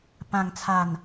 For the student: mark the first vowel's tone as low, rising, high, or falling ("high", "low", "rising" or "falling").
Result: low